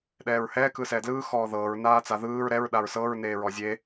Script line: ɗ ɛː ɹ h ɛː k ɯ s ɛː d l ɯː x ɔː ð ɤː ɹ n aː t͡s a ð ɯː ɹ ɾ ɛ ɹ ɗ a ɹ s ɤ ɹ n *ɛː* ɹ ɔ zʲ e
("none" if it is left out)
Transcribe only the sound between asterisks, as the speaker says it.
eː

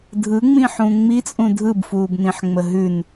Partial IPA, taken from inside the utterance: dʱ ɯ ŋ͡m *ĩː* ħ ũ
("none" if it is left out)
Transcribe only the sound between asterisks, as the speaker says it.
ĩ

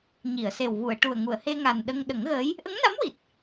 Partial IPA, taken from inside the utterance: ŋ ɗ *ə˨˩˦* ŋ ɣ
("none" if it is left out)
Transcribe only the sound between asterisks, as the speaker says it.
ə˨˩˦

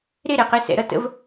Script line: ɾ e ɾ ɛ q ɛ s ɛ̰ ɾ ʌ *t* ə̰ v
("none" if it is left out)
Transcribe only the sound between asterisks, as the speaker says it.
t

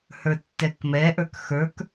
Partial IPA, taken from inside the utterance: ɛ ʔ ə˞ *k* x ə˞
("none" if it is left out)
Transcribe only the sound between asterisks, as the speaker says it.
k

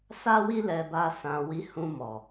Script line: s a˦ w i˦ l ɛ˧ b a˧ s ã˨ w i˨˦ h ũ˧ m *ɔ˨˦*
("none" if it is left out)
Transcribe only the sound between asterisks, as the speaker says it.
ɔ˨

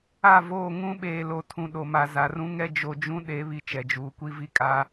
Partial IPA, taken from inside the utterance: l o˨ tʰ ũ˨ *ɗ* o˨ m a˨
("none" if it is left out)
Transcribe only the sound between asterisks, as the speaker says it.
ɗ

